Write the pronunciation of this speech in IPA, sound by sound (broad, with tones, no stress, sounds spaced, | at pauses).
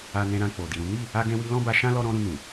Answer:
a˧ n ɛ̃˧ ɾ ã˧ k͡p o˨ d i˨ ɾ ũ˨˦ n i˦˨ | a˦ ɡ ɛ̃˦ w i˦ l ɔ̃˦ b a˧ ʃ ã˦ l ɔ˦ ɾ ɔ̃˦ ɾ ũ˧ n ũ˨